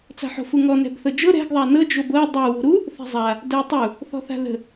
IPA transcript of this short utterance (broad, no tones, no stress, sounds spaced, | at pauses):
t͡s a̤ ħ o̤ f u ŋ ɔ n ɛ̤ b θ ɤ d͡ʒ ɤ ɾ ɛ̤ ɡ ðˤ a n ɤ d͡ʒ o b ɤ dˤ ə w o̤ ɾ u | θ ɛ̤ zˤ a | d ə w tˤ u | θ ɔ̤ θ a̤ ð ə̤